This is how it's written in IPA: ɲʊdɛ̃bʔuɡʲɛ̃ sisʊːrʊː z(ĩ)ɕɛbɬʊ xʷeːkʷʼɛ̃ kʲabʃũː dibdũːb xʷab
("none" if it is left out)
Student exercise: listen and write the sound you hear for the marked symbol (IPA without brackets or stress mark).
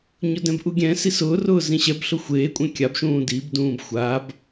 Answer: ĩ